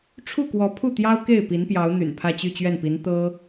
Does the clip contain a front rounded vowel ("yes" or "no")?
yes